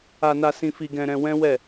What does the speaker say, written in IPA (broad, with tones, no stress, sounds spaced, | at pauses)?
a˧ n a˧ s ĩ˧ f i˧ ɡ ɛ̃˧ ɾ ɛ̃˧ w ɛ̃˦ w ɛ˦˨